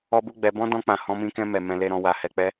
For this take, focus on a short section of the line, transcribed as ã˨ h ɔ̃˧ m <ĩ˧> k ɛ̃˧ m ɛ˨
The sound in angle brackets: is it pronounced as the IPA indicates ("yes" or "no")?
yes